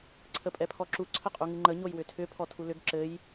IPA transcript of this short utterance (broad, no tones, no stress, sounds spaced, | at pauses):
ǀʰ ə pʼ ɛ pʰ ɔ ǁ u ǀʰ ə qʼ u ŋ ɨ ŋ͡ǃ ə ɲ o j w ʏ tʰ ʏ pʰ ɔ tʰ u l ʏ ɡ ǁ ɘ j